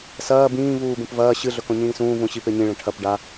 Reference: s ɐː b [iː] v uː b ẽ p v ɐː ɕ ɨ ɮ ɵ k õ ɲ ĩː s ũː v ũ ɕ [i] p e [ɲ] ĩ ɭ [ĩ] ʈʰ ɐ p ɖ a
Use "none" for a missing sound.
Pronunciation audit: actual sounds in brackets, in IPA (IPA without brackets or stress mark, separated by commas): ĩː, i, ɲ, ẽ